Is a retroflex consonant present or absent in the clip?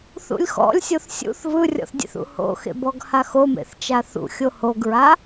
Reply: absent